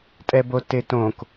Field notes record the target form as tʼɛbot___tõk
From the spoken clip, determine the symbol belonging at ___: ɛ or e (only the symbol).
e